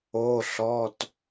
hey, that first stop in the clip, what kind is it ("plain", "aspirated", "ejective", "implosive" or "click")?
plain